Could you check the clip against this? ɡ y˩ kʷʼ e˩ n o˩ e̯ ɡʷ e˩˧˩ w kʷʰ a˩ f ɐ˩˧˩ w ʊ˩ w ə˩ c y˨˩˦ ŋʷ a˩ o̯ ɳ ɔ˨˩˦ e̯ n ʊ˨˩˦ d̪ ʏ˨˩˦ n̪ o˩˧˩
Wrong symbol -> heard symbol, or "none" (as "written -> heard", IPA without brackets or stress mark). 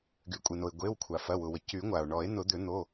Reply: none